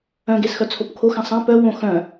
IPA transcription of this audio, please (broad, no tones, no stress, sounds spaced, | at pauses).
œ̃ ɡ e s x œ t͡sʰ o p kʰ o x ã sˤ ã p œ w õ x œ̃